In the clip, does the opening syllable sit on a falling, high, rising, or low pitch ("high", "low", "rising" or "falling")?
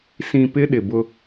low